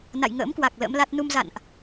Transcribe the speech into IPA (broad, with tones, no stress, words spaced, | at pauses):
na̰˧˨jŋə̰ː˧˥mkwa˨˩k̚ lə̰˧˥mla˦˥t̚ nu˧mza̰˧˨nʔ